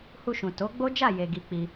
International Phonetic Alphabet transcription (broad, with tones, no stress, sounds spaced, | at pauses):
h u˧ ʃ ũ˨ t o˨˦ ɡ͡b o˦ d͡ʒ a˦˨ j e˨ ɡ i˧ k͡p i˧